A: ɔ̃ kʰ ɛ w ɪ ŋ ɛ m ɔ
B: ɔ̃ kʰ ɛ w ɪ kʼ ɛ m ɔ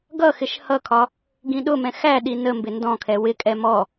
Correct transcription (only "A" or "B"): B